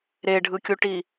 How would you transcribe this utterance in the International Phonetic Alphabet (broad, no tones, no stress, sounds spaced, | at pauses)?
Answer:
ɾ e ɖʱ ɯ kʲ u ʈ i